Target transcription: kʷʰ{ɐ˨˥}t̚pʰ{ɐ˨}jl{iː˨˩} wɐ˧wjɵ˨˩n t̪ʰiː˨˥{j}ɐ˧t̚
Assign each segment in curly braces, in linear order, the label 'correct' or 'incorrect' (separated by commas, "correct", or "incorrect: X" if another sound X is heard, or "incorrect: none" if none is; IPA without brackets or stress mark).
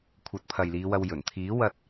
correct, correct, incorrect: iː˨˧, incorrect: w